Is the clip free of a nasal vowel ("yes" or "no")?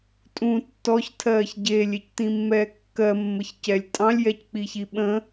no